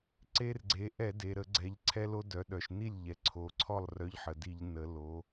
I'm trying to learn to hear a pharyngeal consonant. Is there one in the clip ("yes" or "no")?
yes